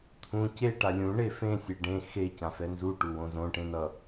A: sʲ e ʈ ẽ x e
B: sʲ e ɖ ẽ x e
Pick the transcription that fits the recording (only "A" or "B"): B